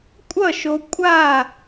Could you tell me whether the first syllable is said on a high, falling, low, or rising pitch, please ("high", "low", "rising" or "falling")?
falling